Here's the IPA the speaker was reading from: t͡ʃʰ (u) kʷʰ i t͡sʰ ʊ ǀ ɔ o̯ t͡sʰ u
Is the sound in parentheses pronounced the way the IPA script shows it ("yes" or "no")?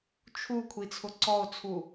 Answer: yes